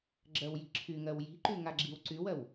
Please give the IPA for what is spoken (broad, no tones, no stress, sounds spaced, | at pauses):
ɡ͡ǁ ɜ w j i̤ ǁʰ y ŋ ɜ w j i̤ ǃ y ŋ a ɡ͡ǁ i w ǀ y w ɜ w